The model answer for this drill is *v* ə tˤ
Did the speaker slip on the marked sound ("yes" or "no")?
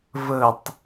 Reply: no